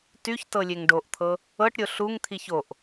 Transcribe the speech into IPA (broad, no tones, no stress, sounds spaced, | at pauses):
t y ç t ɤ lʲ e ŋ ɖ o ʔ t̪ʰ ɤ | ɤ ʈ ɾʲ o ɬ u ŋ t̪ʰ i ç o ʔ